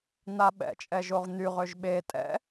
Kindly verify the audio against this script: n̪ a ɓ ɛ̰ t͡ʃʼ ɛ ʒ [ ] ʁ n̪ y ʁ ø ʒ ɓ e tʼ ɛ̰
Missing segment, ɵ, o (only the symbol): o